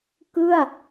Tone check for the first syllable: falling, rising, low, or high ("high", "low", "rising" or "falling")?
falling